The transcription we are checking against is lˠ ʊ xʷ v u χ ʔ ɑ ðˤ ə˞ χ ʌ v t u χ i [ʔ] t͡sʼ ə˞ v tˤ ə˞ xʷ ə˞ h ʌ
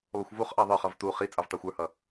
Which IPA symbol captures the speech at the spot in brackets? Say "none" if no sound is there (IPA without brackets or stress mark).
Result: none